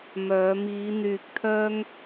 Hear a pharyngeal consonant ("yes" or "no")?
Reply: no